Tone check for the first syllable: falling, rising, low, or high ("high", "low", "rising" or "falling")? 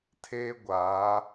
high